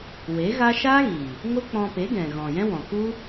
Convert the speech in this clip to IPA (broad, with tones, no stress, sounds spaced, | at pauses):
w e˨˦ ɣ a˦ ʃ aː˦ ɣ iː˨ | ŋ o˦ k͡p ɔ̃˧ p e˨˦ ɡ ɛ̃˨ ɣ ɔ̃˨ j ɛ̃˦ w ɔ̃˨ k u˦